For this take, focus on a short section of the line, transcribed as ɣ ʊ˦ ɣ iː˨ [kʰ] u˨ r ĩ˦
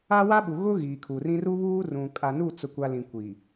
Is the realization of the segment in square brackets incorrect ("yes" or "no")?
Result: no